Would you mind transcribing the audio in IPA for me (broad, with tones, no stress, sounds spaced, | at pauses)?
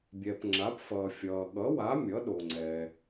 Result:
bʲ ɛ˩ p ŋ͡ǁ a˩˥ p f ʌː˩ fʲ ʌː˩ ɠ ʌ˩˥ w a˩˥ mʲ ʌ˩˥ ɗ o˩ ŋ͡ǀ ɛː˩